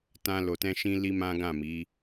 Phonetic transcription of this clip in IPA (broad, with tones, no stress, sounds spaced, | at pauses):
t ã˦ l o˧ t ɛ̃˦ ʃ ĩ˦ l i˦ m ã˦ ɡ ã˦˨ m i˨˦